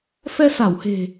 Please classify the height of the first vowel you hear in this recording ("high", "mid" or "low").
mid